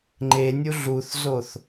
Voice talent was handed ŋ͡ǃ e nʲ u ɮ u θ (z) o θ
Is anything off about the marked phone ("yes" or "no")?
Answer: no